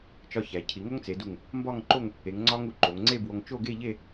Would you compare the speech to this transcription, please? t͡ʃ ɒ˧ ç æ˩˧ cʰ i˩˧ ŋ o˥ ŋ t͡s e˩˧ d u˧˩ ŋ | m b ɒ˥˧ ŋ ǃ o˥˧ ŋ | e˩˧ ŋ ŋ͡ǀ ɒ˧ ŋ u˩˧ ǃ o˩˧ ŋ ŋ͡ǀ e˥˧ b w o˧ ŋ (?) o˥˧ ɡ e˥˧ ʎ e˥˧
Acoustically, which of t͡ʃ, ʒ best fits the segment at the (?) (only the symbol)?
t͡ʃ